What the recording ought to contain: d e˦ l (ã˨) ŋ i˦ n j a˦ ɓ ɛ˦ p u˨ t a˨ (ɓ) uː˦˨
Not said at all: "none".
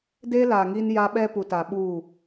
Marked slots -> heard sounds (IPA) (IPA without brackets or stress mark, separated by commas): a˨, ɓ